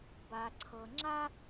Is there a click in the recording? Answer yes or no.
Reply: yes